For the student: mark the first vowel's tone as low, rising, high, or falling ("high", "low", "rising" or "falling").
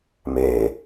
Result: low